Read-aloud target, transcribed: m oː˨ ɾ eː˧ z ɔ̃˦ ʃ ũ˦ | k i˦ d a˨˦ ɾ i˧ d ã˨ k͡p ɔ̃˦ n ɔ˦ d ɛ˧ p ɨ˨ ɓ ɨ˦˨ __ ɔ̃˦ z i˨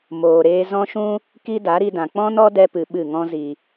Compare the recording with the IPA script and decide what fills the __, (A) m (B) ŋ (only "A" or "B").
B